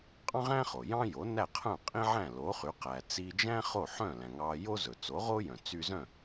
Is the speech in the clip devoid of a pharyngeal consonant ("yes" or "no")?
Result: no